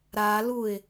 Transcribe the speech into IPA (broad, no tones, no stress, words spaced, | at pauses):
ɾa luɪ̯